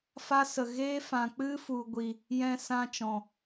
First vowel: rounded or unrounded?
unrounded